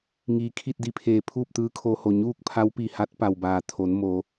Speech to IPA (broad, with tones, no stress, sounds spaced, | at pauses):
ŋ iː˩ kʰ i˥˨ t̚ d i˧ pʰ eː˩ pʰ uː˥˨ p̚ t̪ ɯː˧˥ kʰ oː˧ h o˧˩ ɲ uː˥˨ k̚ pʰ a˧˥ w p i˧˩ h a˧˥ t̚ p a˩ w b aː˧˩ t̪ʰ o˩˧ n m o˩˧